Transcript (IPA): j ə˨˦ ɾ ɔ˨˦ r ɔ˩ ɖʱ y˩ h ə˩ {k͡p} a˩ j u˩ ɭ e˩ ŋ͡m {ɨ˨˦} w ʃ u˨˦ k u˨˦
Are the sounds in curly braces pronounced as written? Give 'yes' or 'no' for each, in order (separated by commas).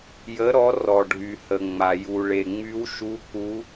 no, no